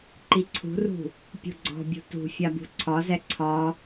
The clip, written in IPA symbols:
ǃ i ǀʰ ṳ r ṳ | pʲ ṳ ɡ͡ǀ ɔ̤ bʲ ṳ t ṳ fʲ a b ṳ ǀʰ ɒ z ɛ ǀʰ ɒ

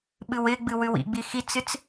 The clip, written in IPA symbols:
ɓ ɨ w ɪ ɡ͡b ɨ w ʉ w ḭ ɡ͡b i x i t͡s ɨ t͡s

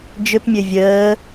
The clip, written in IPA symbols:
d͡ʒ ʏ p mʲ ø vʲ əː

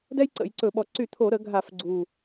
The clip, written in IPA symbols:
d ɛ˥ j ǀ ə̰˧˩˧ j ǀ ɵ˧˩˧ ɓ ɔ˨˩ ǀ y˧˩˧ t̪ʰ o˧˩˧ ɾ ə˧˩˧ ɡʱ a˧˩˧ f ɡ͡ǀ u˨˩

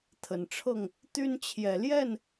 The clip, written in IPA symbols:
t̪ʰ ə˨˩ n ʈ͡ʂʰ ɤ˥˨ ŋ | t̪ y˦ n t͡ɕʰ j ɛ˨˩ l j ɛ˥˨ n

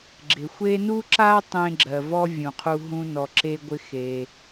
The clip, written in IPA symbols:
ɡ͡ǁ ɪ˩ xʷ e˦ n u˥ ǁ a˥ tˤ ẽ˦ ɡ͡ǁ ɜ˩ v ɔ˥ vʲ ũ˩ qʰ u˦ ɦ ũ˦ n ɔ˨ ǁ e˦ ɡʷ ɪ˦ x e˨

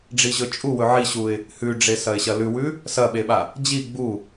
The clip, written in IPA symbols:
ɖ͡ʐ i ʑ ɵ t͡ʃʼ u w ɵ ʕ i ɕ u ɪ̯ | h ʉ ɖ͡ʐ e s ɐ ɪ̯ ɕ ɐ l ʉ w ʉ | s ɐ ɓ e ɓ a | d͡ʑ i ɡ͡b u

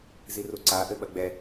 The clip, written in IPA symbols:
z i r u ǀ a ʔ ɘ ɓ ɐ ɡ͡b ɛ

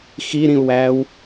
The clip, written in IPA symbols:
x i ɾ ĩ u̯ w æː w

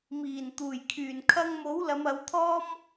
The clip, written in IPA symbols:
m iː˨˩ n t̪ uː˨˩ j kʰ yː˨˩ n kʰ ɐ˧ ŋ m o˨˥ w l ɐ˨˧ m ɐ˨˧ w t̪ʰ ɔː˥ m

